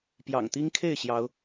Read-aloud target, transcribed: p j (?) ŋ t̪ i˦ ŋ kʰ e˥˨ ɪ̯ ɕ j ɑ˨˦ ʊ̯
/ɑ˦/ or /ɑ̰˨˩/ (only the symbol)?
ɑ̰˨˩